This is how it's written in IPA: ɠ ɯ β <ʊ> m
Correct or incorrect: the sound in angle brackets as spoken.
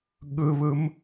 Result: incorrect: ɯ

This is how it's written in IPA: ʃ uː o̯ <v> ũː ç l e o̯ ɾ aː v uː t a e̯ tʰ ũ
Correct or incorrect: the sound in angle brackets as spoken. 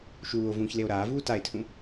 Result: correct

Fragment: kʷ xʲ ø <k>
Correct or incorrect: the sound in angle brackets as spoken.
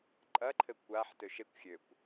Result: incorrect: kʷ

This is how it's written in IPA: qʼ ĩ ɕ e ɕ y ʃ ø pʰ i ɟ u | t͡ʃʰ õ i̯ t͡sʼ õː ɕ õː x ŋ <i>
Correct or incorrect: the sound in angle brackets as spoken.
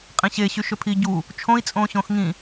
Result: incorrect: ĩ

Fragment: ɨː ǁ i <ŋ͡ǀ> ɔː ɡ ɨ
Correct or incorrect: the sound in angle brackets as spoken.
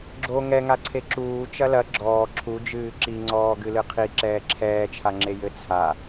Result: correct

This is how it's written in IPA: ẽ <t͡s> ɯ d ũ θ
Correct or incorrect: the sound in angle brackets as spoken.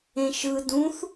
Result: incorrect: ʃ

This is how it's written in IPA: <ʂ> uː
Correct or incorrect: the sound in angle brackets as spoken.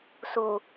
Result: incorrect: s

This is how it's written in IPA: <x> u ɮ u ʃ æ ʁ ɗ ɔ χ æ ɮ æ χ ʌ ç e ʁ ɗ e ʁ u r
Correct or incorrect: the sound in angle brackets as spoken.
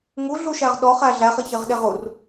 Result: incorrect: ŋ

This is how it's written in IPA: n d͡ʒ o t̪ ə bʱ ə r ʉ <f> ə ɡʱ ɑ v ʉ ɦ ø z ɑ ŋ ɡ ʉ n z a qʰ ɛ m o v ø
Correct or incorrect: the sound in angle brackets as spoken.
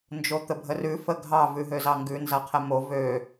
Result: correct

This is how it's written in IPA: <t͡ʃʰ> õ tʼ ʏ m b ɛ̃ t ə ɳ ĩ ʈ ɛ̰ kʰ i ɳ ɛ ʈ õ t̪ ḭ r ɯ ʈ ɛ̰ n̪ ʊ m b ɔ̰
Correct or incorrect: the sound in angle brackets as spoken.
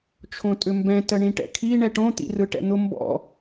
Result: correct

